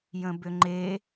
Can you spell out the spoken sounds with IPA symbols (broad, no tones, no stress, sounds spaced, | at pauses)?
j ə̃ b ʏ ŋ͡ǃ e